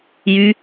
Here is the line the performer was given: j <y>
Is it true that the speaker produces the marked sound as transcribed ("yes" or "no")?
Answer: yes